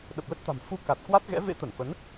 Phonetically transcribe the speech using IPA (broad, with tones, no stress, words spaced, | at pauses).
ɗə˨˩p̚lə˦˥t̚t̪a̤˨˩m fu˧ka˨˩t̚ kwa˦˥t̚ɣɛ̰˧˥ vḛ˧˥t̪ə˧˩nfə˨˦n